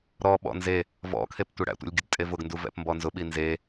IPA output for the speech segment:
ɾɔɓɔ̰ nze | vɔ̰kʰep tʷeɽæ̰tʷɛ̰lʲ ɡʲʊdtʼevʊɡnduv ɛ̰pmbɔnzʊɓi nze

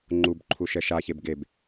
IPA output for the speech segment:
ŋ͡ǃub ǃʰuʃɛʃaçeb ɡeb

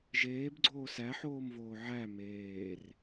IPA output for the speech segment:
ʒeːbɡ͡ǀoː sæħoːmvoː ʕæ meːr

